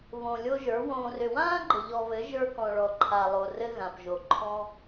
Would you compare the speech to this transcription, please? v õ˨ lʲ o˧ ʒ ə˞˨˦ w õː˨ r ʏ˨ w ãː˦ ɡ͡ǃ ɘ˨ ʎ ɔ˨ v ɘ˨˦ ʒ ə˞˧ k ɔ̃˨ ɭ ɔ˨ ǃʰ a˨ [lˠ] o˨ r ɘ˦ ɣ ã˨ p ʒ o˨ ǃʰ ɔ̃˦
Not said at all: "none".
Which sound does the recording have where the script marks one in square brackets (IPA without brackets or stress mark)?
lˠ